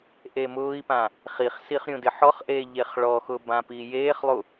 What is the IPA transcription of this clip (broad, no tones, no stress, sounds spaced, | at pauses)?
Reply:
ʔ e m ʊː i̯ p ã | χ i χ s i χ ɾʲ ũ d ɪ ħ ɔ χ ʔ eː ʎ e χ ɭ ɔ x ʊ b ã p iː j eː χ lˠ u